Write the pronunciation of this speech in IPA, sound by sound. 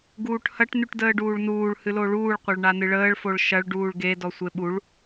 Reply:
ɡ uː ʈ h ɐ ʈ n y ʈ d əː ɖ uː ɭ n uː ɭ h ɨ l o ɭ uː ɭ qʷ ɐ ɭ ɳ a n ɨ ɭ əː ɭ f o ɭ ʃ ɐ ɭ ɖ uː ɭ ɡ e d ɔ sʷ e ɓ u ɭ

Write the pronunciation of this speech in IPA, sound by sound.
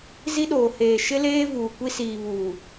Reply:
z i˦ ɗ oː˨ h eː˨ ʃ ɪ˦ l eː˦ v uː˨ kʷ i˦ s iː˨ β uː˨

